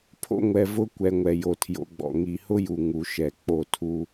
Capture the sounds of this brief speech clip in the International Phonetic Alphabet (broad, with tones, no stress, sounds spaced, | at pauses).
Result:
pʰ o̰˦ ŋʷ ɛ˨ v ʊ˦ kʷ ɛ˨ ŋʷ ɛ˨ j o˨ tʰ j o̰˨˦ ɡ͡b ɔ̰˨ ŋ i˨ h ʊ˦ j u˨ ŋ u˨ ʃ ɛ˨ k͡p o˦˨ tʰ u˦